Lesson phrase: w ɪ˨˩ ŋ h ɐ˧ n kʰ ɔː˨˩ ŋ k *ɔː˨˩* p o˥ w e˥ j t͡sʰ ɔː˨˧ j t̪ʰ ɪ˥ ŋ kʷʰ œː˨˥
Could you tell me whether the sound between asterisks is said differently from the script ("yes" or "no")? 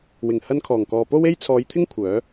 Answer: yes